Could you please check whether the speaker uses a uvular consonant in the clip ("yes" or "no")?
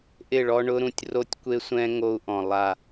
no